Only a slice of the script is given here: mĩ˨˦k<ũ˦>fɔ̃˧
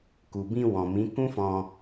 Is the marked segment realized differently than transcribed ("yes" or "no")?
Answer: no